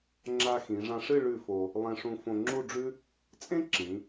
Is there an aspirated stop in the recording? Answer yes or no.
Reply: no